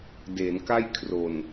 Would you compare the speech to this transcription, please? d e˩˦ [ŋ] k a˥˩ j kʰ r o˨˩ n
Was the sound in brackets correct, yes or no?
no